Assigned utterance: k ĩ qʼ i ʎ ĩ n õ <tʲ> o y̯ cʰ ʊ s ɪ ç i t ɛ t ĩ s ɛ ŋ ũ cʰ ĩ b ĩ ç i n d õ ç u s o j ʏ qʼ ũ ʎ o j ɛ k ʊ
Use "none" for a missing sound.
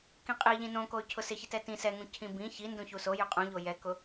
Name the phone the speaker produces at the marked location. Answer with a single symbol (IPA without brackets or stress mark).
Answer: k